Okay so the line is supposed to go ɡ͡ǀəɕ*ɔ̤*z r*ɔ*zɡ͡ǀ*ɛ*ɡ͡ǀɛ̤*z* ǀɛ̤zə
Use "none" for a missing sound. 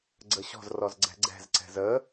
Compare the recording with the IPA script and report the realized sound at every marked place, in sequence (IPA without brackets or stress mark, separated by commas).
ɔ̤, ɔ, ɛ̤, z